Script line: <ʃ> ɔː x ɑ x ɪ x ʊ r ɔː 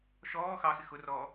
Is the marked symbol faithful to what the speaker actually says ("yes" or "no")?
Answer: yes